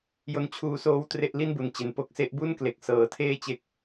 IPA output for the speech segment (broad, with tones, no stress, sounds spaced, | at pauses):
j o˦˥ n t͡ɕʰ uː˧ s oː˦˥ w t r e˥˩ ʔ l i˥˩ n b u˩˦ n t͡ɕ e˨˩ n p o˦˥ k̚ s e˦˥ ʔ b u˥˩ n k l e˨˩ k̚ s ɤː˨˩ tʰ eː˥˩ t͡ɕ e˦˥ k̚